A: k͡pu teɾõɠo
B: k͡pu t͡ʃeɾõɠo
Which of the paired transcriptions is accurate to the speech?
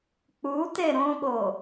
A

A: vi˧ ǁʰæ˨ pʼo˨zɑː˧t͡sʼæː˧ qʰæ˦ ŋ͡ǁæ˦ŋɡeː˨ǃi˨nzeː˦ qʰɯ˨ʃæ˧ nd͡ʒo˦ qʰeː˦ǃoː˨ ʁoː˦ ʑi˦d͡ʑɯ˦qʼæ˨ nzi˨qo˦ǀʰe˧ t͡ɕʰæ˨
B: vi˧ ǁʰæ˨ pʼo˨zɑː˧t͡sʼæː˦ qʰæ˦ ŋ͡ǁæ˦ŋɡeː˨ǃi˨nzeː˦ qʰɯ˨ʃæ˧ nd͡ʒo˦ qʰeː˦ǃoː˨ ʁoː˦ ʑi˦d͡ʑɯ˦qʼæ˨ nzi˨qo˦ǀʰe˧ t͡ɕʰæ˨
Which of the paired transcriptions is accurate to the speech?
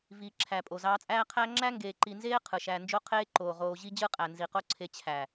B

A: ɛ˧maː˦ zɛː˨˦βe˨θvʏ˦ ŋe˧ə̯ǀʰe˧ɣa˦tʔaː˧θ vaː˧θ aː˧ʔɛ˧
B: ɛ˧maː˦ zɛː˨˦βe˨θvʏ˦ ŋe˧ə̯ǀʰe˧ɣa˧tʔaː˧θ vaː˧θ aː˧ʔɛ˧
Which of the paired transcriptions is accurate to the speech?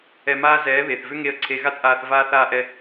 A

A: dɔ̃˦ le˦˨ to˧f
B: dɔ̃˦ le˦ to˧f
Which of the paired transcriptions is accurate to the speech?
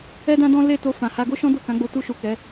A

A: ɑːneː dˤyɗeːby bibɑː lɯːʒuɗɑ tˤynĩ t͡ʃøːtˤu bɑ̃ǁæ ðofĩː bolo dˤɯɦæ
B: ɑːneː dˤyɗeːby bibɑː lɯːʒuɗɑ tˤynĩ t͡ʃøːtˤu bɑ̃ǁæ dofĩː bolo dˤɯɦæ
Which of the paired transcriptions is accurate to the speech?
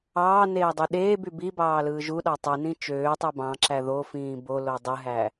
A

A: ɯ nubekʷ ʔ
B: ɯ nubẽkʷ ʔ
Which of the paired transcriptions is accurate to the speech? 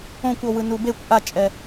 A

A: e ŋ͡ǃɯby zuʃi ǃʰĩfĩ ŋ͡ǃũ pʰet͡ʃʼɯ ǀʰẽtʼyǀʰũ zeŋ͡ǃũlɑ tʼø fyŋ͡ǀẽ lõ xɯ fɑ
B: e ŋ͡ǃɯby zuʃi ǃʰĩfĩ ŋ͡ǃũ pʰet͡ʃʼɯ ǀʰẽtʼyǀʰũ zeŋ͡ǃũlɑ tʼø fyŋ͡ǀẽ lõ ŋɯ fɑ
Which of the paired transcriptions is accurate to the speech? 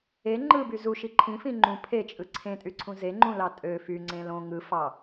B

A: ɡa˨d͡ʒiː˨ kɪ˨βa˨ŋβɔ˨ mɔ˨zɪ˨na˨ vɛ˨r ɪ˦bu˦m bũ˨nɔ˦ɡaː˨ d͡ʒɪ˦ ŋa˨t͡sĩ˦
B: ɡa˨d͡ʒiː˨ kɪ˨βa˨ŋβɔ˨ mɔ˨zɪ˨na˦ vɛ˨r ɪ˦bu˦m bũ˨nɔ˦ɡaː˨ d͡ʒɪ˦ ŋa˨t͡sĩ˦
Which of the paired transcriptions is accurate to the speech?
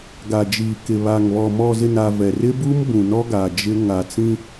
A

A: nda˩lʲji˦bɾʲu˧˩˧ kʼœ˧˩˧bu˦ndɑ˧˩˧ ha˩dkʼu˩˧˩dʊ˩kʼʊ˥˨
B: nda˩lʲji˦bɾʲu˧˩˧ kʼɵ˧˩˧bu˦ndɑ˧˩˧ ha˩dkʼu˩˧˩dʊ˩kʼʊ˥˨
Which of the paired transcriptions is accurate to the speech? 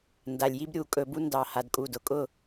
B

